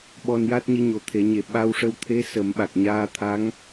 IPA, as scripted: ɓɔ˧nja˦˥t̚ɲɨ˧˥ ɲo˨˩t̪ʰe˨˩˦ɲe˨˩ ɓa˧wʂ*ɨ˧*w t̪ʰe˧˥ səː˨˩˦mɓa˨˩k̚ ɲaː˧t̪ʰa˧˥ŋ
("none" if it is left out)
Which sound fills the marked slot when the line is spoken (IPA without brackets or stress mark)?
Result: ə˧